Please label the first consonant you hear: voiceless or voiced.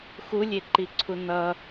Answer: voiceless